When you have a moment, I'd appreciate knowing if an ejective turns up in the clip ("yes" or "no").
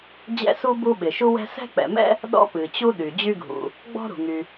no